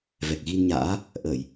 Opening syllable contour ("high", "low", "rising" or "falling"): low